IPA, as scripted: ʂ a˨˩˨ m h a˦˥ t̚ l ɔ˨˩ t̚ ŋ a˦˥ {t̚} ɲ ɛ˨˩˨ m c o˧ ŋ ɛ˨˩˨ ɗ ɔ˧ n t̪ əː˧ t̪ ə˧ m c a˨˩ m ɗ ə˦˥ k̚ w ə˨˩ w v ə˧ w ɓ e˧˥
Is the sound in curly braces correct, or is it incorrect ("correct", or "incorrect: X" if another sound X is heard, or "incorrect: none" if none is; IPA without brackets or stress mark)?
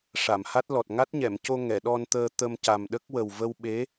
correct